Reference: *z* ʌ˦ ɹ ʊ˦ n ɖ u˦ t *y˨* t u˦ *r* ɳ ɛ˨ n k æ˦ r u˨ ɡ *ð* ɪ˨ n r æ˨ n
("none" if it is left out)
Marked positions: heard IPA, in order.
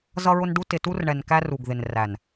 z, ɪ˨, r, ð

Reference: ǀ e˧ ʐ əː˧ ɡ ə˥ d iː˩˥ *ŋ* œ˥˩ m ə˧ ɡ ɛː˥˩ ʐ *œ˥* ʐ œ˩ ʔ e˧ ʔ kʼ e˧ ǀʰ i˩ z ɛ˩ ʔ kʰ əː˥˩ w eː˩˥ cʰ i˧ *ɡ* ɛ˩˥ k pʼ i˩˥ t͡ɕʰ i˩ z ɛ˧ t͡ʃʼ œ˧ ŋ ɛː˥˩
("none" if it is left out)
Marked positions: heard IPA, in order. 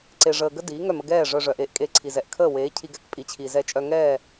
ŋ, œ˧, ɡ

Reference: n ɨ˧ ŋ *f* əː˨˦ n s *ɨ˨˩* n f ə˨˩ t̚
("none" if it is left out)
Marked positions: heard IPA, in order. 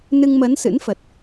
m, ɨ̰˧˥

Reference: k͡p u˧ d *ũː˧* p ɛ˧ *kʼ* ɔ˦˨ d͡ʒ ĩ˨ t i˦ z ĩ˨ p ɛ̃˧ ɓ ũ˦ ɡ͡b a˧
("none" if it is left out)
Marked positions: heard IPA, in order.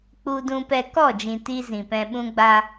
ũ˧, k

